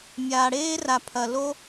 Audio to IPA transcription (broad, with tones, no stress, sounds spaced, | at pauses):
mʲ aː˨ ɽ eː˦ r a˨ pʰ ɐ˨ l o˦